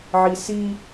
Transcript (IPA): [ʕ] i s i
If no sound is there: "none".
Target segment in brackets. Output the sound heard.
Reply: ʕ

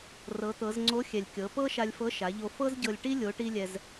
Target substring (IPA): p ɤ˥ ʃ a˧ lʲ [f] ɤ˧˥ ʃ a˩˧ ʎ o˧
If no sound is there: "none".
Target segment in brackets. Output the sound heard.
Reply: f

